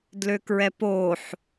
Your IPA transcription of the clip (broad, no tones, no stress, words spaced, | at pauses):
dløkɹɛpoħ